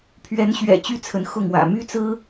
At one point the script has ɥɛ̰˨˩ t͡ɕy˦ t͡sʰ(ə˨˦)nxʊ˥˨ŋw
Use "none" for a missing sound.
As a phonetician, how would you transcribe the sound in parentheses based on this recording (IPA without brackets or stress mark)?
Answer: ə˨˦